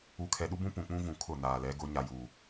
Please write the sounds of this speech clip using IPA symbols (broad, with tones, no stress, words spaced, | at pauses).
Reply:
u˨kʰɛ˨ɗu˦bũ˦ pũ˨k͡pũ˦vũ˨ kʰʊ˦˨naː˨lɛ˨˦ɡʊ˨˦ ɲa˨juː˨